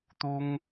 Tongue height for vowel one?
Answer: high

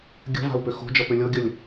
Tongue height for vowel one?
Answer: mid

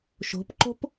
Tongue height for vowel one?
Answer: mid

